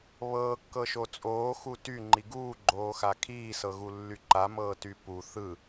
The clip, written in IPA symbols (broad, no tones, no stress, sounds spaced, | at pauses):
β ɤː kː ɤ ʃ o t͡sʼ oː x u t y ŋ͡ǃ i ɡ uː ɡ͡ǃ oː x a kʰ iː s ɤ ɣ u lː y ǃ a m ɤː t y p u θ ɯ